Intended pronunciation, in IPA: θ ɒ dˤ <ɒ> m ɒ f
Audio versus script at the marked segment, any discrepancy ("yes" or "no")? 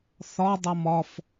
yes